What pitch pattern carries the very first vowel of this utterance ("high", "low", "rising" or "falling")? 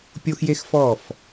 high